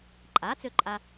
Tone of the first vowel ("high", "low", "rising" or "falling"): rising